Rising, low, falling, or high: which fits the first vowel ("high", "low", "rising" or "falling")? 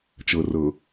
low